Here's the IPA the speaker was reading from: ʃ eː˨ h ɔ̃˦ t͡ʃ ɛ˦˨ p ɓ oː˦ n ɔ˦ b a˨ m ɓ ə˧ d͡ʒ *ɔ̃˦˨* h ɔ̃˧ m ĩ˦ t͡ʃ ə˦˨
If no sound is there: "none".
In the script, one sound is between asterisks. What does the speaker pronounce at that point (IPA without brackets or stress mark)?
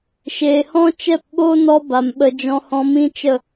ɔ̃˧